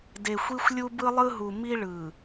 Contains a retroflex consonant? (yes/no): yes